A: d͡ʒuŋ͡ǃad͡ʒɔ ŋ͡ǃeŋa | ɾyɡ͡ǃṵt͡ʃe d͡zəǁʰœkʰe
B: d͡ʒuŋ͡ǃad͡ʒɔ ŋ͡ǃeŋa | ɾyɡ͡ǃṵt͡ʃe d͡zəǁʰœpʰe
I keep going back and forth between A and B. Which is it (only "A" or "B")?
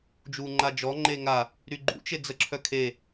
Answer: A